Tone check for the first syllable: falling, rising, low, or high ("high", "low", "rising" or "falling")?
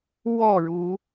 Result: falling